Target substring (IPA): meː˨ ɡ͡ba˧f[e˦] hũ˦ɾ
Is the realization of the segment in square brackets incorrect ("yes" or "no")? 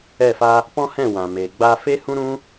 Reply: no